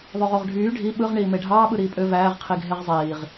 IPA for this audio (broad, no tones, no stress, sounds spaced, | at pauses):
ðˤ ø ʁ o ʁ ɖʱ yː ɖʱ i ɓ ɯ ʁ ɳ iː m e ɖʱ ɑː ɓ ɯ ɾ iː pʼ ø v æː ʁ qʰ i ɡʱ e ʁ zˤ iː ʁ